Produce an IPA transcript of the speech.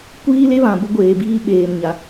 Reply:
kʷiː˦le˦βã˨ bʊ˦ɡʷeː˨biː˦ ɓeː˨mɲa˨

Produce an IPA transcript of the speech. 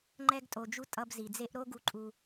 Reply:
ŋ͡ǃɛ˦ɡ tʼo˨d͡ʒu˧ tʼʌ˧bzi˨d͡ze˦ʔ ɾo˦ɡu˧ǃʼu˧

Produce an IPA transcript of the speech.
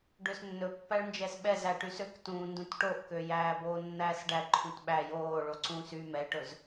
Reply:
ɖøsnːɵpːæɭnd͡ʒɛs ɓɛzæ ʈysøktũː ndũtʈoʔkø jæːboːnːæːsɖæ ǃʰũtɓæ joːɭo ǀũːsy mɛʈɵz

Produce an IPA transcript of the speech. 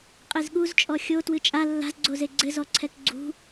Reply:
qʼezɠuzt͡ʃʼɔ xʲo twɨt͡ʃʼa lːa̤zɡ͡ǀoze ɡ͡ǀɘzɔǀʰɛk ɡ͡ǀṳ

